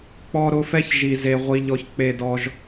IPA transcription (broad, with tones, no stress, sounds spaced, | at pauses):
k͡p ɔ˦ ɾ ʊ˦ f ɛ˥ ç ʒ i˥ z e˥ ʁʷ i˦ ʎ ɔ˦ ç k͡p e˥ d ɔ˥ ʒ